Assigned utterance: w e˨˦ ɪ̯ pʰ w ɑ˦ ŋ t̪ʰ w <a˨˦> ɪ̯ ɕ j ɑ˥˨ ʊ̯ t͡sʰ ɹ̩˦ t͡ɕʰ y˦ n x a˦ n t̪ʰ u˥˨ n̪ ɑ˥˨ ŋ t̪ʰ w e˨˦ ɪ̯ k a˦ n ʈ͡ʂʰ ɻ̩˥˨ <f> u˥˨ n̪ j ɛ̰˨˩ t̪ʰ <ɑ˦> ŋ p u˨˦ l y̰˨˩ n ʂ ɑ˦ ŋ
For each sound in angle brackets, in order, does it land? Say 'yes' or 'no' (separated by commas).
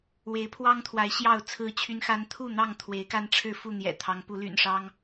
yes, yes, no